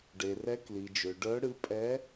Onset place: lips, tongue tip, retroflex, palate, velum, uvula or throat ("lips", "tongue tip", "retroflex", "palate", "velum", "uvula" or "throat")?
retroflex